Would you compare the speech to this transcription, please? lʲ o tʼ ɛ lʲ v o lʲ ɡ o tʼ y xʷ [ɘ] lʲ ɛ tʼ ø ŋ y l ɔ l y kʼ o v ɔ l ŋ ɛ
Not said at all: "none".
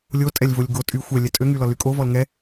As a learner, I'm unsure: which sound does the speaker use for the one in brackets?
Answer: ɛ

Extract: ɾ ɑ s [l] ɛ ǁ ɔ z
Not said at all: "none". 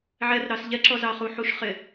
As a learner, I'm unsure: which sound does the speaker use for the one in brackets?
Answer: ʎ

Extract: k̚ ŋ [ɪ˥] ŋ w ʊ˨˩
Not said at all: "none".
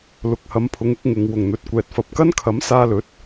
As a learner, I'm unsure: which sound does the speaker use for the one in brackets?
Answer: ɪ˨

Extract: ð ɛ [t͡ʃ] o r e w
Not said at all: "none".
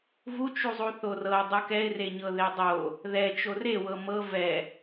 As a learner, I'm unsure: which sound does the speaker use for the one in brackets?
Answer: t͡ʃ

